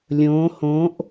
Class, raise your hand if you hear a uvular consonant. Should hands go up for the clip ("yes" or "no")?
no